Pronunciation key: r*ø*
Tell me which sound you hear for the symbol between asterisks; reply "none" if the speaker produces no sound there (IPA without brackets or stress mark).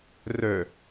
ø